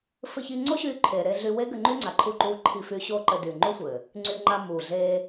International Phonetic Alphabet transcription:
f ɘ˧ ç i˧ ŋ͡ǀ o˦ ɕ yː˧ ǃʰ e˨ ɾ e˧ ɮ y˧ w e˦ ɡ ɘ˧ ŋ͡ǃ y˦ ŋ͡ǀ a˨ ǃʰ u˧ ǃ uː˧ ǃʰ i˧ f y˧ ɕ o˧ ǃ ɘ˨ d y˨ ŋ͡ǃ u˦ sʷ ɘː˨ | ŋ͡ǀ y˧ ŋ͡ǃ a˧ m uː˨ ɮ eː˧

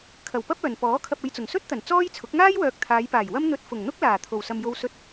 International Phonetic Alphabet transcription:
kʰ ɐ˨˩ w p ɐ˥ p̚ œː˨˩ n p ɔː˨˥ kʰ ɐ˨ p̚ e˧ j t͡s ʊ˨˩ ŋ s ɵ˥ t̚ t̪ ɐ˨˩ n t͡s ɔː˥ j t͡sʰ ʊ˨˥ k̚ ŋ aː˥ j w œː˨ k̚ t̪ʰ aː˨˧ j p aː˨˩ j w ɐ˥ m n̪ ɵ˧ t̚ f ʊ˨˩ ŋ n̪ ʊ˥ k̚ l aː˨˩ t̪ʰ o˨˩ w s ɐ˨ m j o˧ w s ɵ˧ t̚

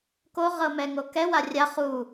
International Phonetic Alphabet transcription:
k o ʁ ɤ m ɛ ŋ o k ɛ w a rʲ a χ u

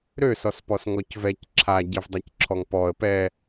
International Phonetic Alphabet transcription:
ɾ ø s ɔ s p ɔ s ŋ ɔ c v ɛ c ǁʰ a ɟ ɛ v dˤ a c ǁʰ ɔ ŋ p ɔ ə̯ p ɛ

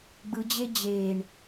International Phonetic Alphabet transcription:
ɡ͡b ɯ d͡ʑ e d͡ʑ e ɳ

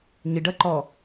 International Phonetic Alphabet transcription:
ɲ ɪ ɖ ɐ ǃ ɔ

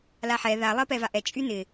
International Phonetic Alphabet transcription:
l a ħ ɛ ð a lˠ ɜ p ɛ v a ʔ ɛ t͡ʃʼ y n ɪ

